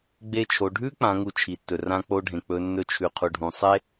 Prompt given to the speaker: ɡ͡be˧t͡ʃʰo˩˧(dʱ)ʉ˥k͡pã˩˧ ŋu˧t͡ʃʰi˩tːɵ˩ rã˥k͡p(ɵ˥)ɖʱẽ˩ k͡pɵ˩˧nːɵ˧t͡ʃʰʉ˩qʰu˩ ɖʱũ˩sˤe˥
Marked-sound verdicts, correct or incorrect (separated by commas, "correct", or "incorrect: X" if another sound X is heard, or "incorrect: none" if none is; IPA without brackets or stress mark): incorrect: ɖʱ, incorrect: o˥